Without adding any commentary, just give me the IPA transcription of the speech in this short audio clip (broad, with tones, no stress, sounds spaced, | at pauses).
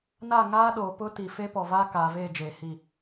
n a˦˨ ŋ aː˦ ɗ o˨ p ʊ˦ t i˨ f e˦ p ɔ˨ v a˦ k aː˨ v eː˦˨ d͡ʒ eː˨ h i˦˨